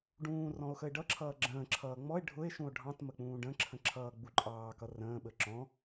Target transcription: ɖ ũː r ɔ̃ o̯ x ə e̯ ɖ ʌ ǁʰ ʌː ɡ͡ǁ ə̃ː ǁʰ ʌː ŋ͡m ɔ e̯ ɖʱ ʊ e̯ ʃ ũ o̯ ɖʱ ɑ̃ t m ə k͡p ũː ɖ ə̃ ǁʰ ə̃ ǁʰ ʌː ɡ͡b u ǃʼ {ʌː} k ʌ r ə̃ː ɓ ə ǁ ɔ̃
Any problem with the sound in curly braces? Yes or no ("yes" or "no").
yes